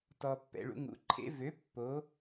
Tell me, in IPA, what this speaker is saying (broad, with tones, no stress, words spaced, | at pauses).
tɔ˩pːɛ̰˩ɭṵ˩˧ŋṵ˩˧˩ ǃʰḛ˩˥ vø˩˥ pːo˩˥